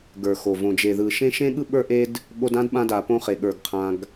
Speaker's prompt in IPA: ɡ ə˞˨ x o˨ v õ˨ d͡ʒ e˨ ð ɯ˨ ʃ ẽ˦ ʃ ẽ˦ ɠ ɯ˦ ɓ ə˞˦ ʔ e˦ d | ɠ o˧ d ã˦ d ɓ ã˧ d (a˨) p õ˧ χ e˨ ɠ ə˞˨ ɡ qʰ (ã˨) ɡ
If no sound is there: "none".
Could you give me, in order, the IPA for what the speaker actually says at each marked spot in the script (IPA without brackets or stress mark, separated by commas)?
a˨, ã˧